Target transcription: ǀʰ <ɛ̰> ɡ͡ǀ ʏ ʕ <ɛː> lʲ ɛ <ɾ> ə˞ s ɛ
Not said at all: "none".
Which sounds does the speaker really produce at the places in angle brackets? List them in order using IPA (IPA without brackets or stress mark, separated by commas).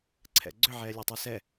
ɛ̰, ɛː, tˤ